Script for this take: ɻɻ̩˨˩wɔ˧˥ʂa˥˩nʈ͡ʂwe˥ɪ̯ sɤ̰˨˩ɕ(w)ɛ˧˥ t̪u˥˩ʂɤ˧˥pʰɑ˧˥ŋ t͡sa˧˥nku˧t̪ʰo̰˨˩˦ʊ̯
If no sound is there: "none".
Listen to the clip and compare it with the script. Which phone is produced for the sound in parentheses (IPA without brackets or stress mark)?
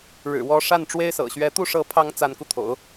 ɥ